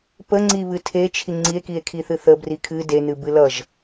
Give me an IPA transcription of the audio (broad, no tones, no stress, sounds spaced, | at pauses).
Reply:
p ə ŋ͡ǀ i β ɨ tʰ e t͡ʃʰ i ŋ͡ǀ i e̯ k i e̯ kʰ i θ ɨ θ ə b r i kʰ ɨ d e n ɨ b ɨ l ʌ ʒ